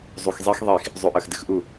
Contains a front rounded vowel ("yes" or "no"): no